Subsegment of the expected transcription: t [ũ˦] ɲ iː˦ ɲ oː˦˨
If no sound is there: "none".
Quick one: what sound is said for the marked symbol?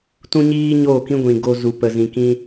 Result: ũ˦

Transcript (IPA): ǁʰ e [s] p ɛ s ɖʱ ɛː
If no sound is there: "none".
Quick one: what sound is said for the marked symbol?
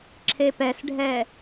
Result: none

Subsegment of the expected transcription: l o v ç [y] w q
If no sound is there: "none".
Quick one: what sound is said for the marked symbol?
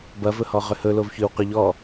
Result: ʏ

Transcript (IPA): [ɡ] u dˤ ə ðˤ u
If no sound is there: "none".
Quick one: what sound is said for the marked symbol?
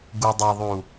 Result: ɡ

